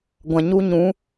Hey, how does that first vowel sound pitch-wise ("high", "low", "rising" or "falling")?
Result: low